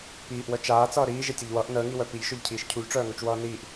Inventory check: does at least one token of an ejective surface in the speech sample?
no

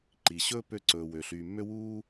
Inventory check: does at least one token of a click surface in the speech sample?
yes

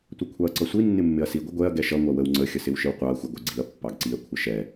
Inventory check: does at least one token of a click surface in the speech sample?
yes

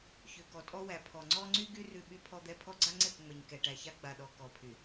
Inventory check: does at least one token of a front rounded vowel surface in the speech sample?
yes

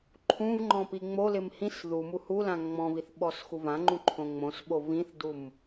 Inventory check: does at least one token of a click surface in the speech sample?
yes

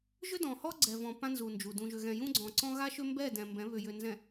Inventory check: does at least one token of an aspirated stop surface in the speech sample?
no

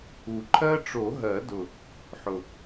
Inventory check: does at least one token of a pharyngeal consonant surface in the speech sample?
yes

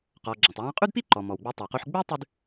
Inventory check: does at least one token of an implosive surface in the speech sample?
no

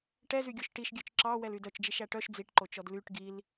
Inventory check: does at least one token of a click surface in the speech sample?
yes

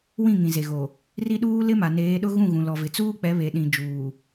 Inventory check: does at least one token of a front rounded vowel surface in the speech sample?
no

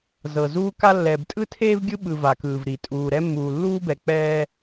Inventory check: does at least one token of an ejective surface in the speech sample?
yes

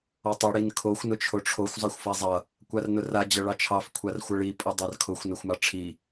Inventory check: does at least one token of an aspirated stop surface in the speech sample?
yes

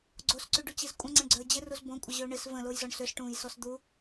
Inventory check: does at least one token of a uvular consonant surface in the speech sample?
no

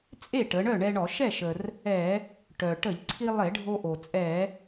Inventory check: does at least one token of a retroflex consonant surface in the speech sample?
yes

